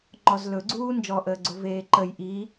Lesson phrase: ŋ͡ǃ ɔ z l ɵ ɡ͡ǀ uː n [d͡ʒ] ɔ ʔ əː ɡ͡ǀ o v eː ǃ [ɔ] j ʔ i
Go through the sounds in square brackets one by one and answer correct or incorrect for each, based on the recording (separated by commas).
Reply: correct, incorrect